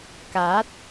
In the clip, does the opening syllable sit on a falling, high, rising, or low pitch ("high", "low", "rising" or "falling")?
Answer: rising